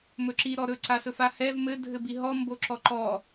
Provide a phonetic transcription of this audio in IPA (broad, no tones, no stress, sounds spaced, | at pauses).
m ɵ ǁ i ɾ ɔ ɾ ɵ ǀ a s ɵ f a h ɛ v m ɘ dʱ ɘ b i ɦ ɔ m b o ǁ ɔ ǃ ɔ